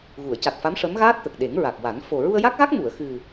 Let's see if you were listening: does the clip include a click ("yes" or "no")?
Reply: no